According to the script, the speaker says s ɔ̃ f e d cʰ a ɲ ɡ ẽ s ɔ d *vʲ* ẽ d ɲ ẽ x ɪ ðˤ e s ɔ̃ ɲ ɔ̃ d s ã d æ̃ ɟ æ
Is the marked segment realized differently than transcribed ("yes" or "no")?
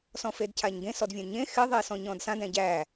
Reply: no